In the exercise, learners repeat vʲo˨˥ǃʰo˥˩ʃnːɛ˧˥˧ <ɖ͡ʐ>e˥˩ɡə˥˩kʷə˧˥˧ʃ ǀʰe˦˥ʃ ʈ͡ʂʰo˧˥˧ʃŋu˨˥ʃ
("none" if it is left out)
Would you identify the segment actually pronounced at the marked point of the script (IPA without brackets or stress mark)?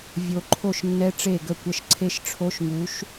ʈ͡ʂ